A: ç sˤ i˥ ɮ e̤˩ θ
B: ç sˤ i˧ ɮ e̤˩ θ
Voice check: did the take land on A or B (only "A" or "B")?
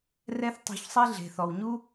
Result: A